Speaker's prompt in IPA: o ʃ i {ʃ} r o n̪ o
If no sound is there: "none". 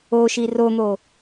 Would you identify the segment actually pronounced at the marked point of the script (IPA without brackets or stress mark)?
none